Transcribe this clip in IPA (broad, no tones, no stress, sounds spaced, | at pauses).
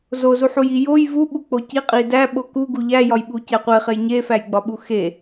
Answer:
z o z u ħ u j i j o j v u ɓ u k͡p o c i qʼ i d æ ɓ o k u ɡ u ʎ æ j ɒ j ɓ u c æ qʷ e χ e j ɲ e f æ j ɡ͡b ɒ ɓ u x e